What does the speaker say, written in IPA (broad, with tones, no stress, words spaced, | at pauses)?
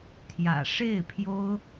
t̪ʰjä̰˨˩ ʂe˥˩ɪ̯pʰjo˥ʊ̯